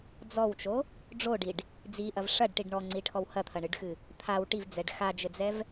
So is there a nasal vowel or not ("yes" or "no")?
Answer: no